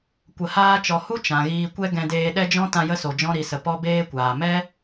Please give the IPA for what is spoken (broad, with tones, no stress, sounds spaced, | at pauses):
kʷ ə˧ h aː˦ t͡ʃ ɔ˧ h u˦ t͡ʃ ã˨ ɣ iː˧ kʷ ɛ˦ ɡ ɛ̃˧ d eː˧ ɗ ɛ˦ d͡ʒ ɔ̃˦ t ã˧ j ə˧ s o˨ d͡ʒ ɔ̃˧ ɾ i˨ s ə˨ p ɔ˧ b eː˧ kʷ aː˨ m ɛ˦